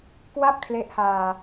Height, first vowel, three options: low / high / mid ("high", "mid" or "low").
low